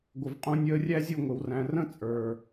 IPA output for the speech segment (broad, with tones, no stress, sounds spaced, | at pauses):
ɡʷ ə˨ v qʼ ũ˧ nʲ əː˧ rʲ æ˦ zʲ u˦˨ ŋʷ ɪ˨ w r æ̃˨ r ə̃˦ t͡sʼ ə˞˨